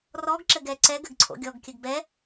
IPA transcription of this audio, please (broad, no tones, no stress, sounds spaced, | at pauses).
r ɔ ɡ ǁ ɘ ɡ ɛ ǀ ɛ ɡ ɘ ɡ ǀʰ o̰ ɡʲ ɔ ɡ kʲ ɘ ɡ b ɛ